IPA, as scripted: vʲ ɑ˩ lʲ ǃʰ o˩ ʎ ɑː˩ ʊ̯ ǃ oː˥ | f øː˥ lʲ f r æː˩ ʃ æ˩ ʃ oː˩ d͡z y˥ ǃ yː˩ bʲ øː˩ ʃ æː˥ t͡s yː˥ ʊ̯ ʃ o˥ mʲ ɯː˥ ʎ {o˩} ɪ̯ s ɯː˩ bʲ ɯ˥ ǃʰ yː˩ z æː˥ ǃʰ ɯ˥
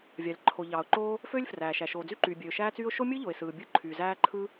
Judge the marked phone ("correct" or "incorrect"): correct